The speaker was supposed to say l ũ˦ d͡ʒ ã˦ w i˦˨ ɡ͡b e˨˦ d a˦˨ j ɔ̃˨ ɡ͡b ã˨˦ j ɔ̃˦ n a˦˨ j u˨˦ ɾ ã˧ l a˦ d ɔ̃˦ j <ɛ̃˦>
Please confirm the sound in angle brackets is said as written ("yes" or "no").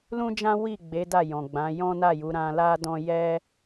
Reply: no